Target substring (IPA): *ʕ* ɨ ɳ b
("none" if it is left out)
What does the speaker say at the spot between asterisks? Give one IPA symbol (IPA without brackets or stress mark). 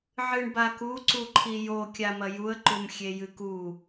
ʕ